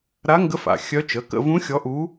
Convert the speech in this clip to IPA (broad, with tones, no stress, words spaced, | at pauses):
ɾa˧˥ŋɡə˧˥f a̰˩˧˩xʲœ˧˥t͡ʃə˩˧˩ kə̰˦˨vũ˧˥ xʲɔ˧˥ʔu˧˥